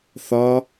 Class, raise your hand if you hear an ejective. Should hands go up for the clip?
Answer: no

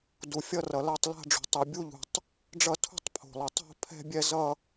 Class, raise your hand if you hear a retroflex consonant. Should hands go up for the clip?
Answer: yes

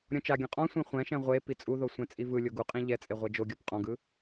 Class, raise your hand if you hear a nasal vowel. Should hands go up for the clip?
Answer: yes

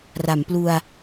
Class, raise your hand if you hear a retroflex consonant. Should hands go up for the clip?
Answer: no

